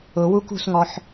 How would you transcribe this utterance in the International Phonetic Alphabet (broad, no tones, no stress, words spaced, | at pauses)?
ʊ wukṳsŋɔħ